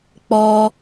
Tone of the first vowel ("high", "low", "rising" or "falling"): high